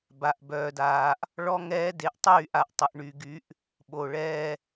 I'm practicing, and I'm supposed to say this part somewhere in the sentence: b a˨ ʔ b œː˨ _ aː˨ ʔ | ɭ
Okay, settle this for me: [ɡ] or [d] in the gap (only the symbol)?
d